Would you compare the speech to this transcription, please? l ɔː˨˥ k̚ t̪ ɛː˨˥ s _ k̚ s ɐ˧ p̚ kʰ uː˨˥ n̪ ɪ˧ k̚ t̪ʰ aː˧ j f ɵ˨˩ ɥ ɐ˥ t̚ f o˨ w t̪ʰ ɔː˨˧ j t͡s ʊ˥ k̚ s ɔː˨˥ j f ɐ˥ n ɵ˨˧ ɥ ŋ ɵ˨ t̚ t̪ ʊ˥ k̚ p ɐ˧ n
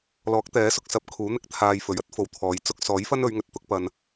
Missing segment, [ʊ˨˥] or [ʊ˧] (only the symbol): ʊ˧